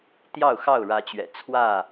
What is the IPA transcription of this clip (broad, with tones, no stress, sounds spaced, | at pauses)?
t̪ j ɑ˥˨ ʊ̯ x ɑ˥˨ ʊ̯ ɻ ä˨˦ t͡ɕ ɥ ɛ̰˨˩ t͡sʰ w ä˥˨